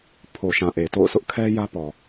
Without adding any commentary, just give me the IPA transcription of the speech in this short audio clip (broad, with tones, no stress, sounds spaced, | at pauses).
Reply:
pʰ o˨ ʃ ã˨ ʔ e˨ t o̰˦˨ ʊ̯ s ʊ˦ ʔ kʰ ɛ˦ j ä˦ p ɔ˨